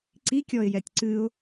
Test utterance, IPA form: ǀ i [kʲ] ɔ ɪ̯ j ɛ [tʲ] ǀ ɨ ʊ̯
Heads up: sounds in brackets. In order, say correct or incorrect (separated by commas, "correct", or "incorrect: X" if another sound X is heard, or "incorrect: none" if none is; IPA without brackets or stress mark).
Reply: correct, correct